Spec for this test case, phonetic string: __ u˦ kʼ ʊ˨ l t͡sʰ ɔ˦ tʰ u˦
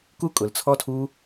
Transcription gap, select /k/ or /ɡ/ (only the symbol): k